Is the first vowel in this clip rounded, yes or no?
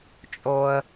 yes